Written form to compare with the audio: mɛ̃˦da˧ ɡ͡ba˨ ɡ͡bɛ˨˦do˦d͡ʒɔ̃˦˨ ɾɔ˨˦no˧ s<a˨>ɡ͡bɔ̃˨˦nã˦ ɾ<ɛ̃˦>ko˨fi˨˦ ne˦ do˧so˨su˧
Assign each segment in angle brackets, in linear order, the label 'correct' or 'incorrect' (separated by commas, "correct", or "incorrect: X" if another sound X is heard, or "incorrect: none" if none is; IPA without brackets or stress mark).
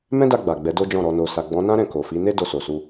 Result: correct, incorrect: ɛ̃˦˨